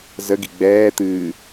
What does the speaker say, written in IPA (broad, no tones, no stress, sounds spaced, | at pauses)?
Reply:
z ə ɡ i ɡ͡b ɛː t̪ ɨː